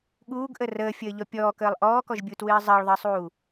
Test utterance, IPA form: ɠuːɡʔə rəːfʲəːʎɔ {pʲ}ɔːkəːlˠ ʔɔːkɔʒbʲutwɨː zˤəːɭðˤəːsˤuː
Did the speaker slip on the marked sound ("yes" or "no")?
no